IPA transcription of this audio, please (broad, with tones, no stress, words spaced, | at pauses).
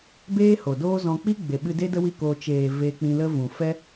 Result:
beː˦ho˨doː˦zɔ̃˧ k͡pi˦ ɡ͡be˨ɓɨ˧de˦ də˦wi˦˨koː˧ t͡ʃeː˨ ve˧k͡pĩ˧lə˦ vũ˨fɛ˦